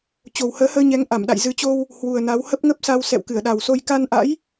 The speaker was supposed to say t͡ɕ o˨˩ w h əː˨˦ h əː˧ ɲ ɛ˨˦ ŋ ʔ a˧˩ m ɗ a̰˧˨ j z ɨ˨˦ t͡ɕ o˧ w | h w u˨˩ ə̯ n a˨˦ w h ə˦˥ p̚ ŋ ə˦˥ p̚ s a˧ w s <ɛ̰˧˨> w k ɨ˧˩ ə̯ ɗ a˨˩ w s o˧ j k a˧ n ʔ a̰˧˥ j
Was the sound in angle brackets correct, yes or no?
yes